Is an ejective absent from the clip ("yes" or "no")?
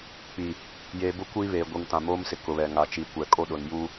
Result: no